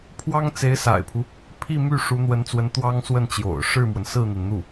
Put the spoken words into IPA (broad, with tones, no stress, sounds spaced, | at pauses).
pʰ w ɑ˥ ŋ t͡s e˧˥ ɪ̯ s a̰˨˩ ɪ̯ pʰ u˦ | pʰ i˥˧ m y˥˩ ʂ u˧˥ n̪ w ə˧˥ n t͡s w ə˧˥ n t̪ w ɑ˥ ŋ s w ə˥˩ n t͡ɕ j o̰˨˩ ʊ̯ ʂ ɻ̩˥˩ m w ə˩ n s ɹ̩˥˩ n̪ i˩ n n̪ u˥˩